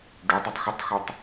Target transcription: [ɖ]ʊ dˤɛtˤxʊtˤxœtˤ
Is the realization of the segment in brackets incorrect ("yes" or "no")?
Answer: no